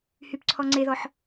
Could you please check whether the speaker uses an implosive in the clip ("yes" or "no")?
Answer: no